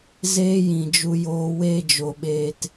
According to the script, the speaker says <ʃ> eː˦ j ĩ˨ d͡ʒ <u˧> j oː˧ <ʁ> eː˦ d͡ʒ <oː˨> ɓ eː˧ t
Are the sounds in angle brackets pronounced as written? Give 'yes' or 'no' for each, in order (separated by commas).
no, yes, no, no